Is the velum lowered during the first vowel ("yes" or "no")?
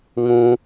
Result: yes